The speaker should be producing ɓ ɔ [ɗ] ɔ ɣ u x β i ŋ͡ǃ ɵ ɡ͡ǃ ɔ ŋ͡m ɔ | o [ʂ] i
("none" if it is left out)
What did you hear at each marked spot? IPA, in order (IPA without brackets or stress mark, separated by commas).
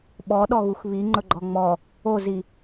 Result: ɗ, z